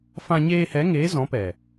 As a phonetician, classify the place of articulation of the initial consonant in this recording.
labial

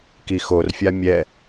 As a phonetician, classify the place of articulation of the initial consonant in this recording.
velar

